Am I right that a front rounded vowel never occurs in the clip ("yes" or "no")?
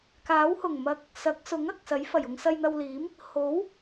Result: yes